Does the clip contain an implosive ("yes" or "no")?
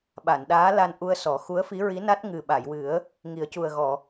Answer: yes